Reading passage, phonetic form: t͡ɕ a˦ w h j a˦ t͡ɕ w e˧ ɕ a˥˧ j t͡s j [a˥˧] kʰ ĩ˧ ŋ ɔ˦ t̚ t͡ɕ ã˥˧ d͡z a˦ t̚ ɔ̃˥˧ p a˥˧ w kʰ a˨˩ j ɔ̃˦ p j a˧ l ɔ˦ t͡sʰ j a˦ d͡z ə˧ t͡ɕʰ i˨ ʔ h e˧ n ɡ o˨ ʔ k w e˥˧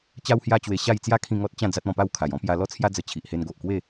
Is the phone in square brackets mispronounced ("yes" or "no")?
yes